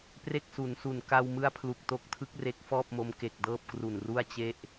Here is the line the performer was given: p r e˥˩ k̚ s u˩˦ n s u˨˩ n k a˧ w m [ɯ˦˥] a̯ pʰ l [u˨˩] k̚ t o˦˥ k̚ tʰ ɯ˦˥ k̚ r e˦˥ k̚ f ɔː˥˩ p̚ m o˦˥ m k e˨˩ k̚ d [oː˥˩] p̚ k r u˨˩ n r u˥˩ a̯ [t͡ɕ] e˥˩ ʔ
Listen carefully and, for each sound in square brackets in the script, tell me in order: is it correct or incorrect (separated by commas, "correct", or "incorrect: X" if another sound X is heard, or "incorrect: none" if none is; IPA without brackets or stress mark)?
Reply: correct, correct, incorrect: ɤː˥˩, correct